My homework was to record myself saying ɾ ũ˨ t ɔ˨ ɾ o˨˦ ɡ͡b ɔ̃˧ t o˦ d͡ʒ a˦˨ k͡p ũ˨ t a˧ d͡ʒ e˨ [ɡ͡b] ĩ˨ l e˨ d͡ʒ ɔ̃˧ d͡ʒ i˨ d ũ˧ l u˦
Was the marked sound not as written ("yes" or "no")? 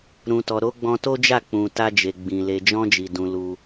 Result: no